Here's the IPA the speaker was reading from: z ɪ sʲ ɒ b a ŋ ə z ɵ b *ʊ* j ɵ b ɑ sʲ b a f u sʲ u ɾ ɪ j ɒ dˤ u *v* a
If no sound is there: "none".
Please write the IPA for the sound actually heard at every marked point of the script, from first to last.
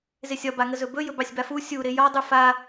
ɵ, f

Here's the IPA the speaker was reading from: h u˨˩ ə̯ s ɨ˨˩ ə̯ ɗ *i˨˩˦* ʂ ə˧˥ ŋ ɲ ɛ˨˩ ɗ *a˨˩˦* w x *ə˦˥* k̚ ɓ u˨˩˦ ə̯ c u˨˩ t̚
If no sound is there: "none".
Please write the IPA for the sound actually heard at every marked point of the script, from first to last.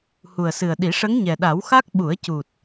i˨˩˦, a˨˩˦, a˦˥

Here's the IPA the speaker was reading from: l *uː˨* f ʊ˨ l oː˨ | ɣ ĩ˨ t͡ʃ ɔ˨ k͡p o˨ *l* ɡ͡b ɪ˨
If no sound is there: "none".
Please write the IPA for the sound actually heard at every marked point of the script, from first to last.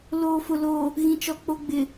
oː˨, none

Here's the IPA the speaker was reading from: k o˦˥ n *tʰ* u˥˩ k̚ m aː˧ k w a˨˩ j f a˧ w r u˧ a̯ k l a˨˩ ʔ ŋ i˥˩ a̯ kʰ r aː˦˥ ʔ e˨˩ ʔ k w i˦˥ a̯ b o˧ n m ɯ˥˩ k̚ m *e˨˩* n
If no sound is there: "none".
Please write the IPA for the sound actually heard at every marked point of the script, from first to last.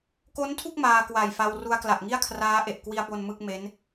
tʰ, e˦˥

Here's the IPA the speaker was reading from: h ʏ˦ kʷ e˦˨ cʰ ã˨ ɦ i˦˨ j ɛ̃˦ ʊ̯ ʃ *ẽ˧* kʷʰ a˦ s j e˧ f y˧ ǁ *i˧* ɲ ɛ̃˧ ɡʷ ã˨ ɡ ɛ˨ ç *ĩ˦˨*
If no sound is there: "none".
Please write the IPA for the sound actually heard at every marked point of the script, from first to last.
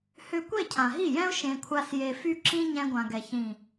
ẽ˧, ĩ˧, ĩ˨

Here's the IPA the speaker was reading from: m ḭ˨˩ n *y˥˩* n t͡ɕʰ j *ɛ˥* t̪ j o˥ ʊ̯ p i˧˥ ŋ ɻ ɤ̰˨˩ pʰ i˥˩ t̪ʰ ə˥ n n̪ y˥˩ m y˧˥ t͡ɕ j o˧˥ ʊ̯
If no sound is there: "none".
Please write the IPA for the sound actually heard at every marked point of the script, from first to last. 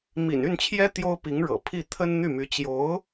y˥˩, ɛ˥

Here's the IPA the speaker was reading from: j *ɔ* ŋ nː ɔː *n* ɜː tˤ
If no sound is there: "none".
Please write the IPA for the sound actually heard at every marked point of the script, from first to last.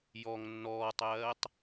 ɔ, tˤ

